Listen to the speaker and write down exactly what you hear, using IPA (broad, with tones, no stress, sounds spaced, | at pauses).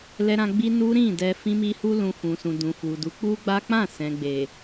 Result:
l ɛ˦ ɾ ã˦ ɡ͡b i˦ n u˦ ɾ ĩ˦˨ d ɛ˧ f ĩ˦ m i˦ h u˦ l ũ˧ f ũ˨ s ũ˨ d ũ˨ f u˨ d u˨˦ k͡p u˦ ɡ͡b a˦ k͡p ã˦˨ s ɛ̃˨ ɡ͡b e˨